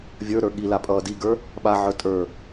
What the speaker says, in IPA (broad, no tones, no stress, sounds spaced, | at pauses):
vʲ ə˞ ɾ ə˞ ɠ i l a pʼ ʌː d i ɡ ə˞ | ɓ a ʕ ə˞ tʼ ə˞